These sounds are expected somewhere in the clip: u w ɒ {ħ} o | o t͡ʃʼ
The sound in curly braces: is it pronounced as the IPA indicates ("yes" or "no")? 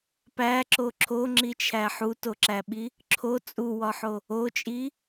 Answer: yes